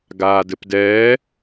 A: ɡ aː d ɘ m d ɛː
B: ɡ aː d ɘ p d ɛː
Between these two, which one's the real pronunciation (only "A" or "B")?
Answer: B